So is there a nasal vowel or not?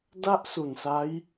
no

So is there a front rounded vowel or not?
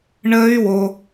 yes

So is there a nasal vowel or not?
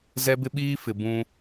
yes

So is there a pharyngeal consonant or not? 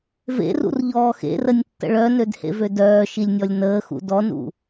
no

